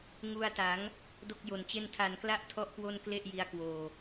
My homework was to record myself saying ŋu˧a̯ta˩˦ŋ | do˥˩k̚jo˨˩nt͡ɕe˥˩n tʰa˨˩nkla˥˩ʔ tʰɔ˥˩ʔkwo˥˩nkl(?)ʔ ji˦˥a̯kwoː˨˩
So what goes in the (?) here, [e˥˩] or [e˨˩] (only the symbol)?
e˥˩